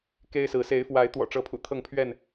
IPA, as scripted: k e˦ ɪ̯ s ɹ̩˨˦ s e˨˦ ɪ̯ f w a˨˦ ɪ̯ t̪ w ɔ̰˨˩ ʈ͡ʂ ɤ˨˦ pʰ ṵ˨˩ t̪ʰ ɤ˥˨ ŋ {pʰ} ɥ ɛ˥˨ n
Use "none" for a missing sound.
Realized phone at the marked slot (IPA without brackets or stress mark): pʰ